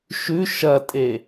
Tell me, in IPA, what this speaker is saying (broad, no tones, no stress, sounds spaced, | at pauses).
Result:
ʃ ʉ ʃ ɐ tʼ e